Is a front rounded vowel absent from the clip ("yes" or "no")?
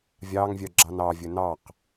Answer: no